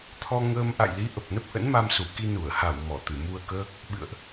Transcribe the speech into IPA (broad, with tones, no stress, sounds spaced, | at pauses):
t̪ʰ ɔ˧ ŋ əː˧ m ʔ a̰˧˨ j l i˨˦ ʔ ə˨˩ p̚ n ə˦˥ p̚ ʔ ə̰˧˥ n m a˧ m s u˧˩ k i˧ n u˧˩ ə̯ h a˧˩ w m ɔ˧˩ t̪ ɨ˧˩ m u˧ ə̯ k əː˦˥ k̚ | ɓ ɨ̰˧˨ ə̯ ʔ